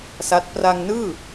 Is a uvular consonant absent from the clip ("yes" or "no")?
yes